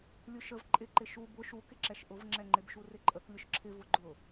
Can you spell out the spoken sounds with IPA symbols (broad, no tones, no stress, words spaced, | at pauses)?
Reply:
lʲʊʃəv ǃʼɪǃɪ ʃu bʊ ʃukɪǁɛʃ ʔʊvŋ͡ǁɛŋ͡ǃɪb ʃurɪǃʼək lʲʊʃǁʰɪvʊ ɡ͡ǃʊ